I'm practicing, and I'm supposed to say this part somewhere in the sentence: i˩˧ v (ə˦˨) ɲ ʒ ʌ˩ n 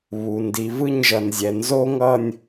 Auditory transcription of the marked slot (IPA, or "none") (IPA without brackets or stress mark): ɯ˦˨